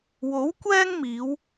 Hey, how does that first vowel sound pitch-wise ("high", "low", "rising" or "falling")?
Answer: rising